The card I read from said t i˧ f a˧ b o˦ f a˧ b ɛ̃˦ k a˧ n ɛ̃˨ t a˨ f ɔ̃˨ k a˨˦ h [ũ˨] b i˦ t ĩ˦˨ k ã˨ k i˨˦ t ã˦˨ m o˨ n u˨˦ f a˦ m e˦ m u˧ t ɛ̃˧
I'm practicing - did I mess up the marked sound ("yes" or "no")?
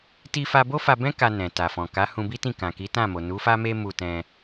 yes